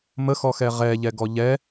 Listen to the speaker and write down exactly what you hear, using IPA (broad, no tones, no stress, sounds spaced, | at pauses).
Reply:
m ə x ɔ x ɛ ʁ ɛ ʎ ɛ ɡ ɔ ʎ ɛ